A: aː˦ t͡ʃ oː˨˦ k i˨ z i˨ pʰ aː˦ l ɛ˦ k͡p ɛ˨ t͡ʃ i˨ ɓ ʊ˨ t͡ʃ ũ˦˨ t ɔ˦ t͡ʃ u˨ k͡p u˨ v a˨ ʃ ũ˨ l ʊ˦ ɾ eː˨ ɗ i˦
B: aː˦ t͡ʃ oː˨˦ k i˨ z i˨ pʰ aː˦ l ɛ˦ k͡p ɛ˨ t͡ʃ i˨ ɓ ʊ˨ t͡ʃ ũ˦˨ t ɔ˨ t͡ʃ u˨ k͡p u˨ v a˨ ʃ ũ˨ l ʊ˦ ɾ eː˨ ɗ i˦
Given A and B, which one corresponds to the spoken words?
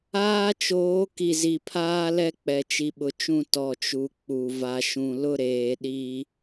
B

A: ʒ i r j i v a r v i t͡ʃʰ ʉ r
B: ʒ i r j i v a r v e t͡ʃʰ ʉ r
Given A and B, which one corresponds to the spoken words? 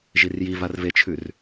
B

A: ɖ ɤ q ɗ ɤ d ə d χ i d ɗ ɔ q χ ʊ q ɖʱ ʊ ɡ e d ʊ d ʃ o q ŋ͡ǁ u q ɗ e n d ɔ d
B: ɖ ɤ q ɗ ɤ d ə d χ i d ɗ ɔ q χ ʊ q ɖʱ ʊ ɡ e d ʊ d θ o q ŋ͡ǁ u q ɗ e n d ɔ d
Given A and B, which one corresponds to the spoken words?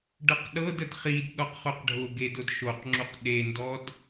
A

